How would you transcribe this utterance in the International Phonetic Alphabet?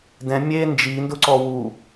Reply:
d ɛ̃ mʲ e n d͡ʒ i n d ʊ ǀ ɔ w u

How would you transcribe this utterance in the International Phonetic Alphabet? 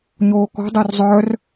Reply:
ɲ oː k ɔ̤ dˤ o r zˤ œ r

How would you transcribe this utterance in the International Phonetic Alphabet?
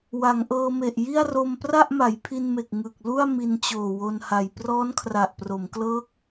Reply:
w a˩˦ ŋ ʔ ɤː˧ m e˨˩ ʔ j i˥˩ a̯ r o˧ m p r a˥˩ ʔ m a˩˦ j pʰ i˧ n m e˨˩ k̚ ŋ ɯ˨˩ k̚ l u˥˩ a̯ m i˧ n t͡ɕ oː˨˩ w o˧ n h a˨˩ j p r ɔː˦˥ n kʰ r a˨˩ ʔ p r o˩˦ m k l ɤː˦˥ k̚

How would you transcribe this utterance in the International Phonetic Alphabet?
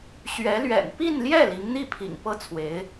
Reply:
ɕ ɥ ɛ˧˥ l ɥ ɛ̰˨˩ n p i˥˧ n l j ɛ˥˩ l i˧˥ ŋ n̪ i˥˩ pʰ ḭ˨˩ ŋ p ɤ˥˩ t͡sʰ w e˧˥ ɪ̯

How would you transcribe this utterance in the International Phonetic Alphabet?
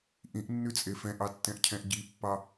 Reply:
ʔ ĩ ʔ nː ʉ t͡sʼ e f ɛ̃ ʔ ɑ tː ɛ̃ ʔ cʰ ɛ̃ ʔ ɟ i pː ɑ

